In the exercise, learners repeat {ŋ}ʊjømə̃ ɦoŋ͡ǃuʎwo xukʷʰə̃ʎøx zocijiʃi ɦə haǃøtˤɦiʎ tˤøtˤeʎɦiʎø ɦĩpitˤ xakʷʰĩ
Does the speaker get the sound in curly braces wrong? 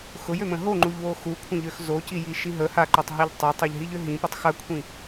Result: yes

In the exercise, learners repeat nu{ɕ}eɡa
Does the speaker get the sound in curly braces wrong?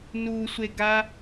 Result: yes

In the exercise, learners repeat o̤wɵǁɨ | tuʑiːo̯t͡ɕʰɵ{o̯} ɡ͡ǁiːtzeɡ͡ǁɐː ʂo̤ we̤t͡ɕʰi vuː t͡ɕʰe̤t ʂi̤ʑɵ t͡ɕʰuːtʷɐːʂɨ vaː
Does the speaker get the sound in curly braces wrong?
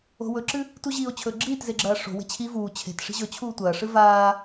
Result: yes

